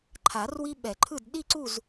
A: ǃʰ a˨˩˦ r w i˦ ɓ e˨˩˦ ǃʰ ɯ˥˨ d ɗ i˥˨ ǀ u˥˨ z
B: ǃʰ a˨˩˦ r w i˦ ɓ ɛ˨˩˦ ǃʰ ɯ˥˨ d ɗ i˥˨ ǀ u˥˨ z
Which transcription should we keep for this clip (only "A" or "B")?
B